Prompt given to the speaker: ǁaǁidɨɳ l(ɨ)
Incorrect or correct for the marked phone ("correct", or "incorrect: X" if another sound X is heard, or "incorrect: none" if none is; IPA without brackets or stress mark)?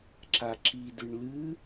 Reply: correct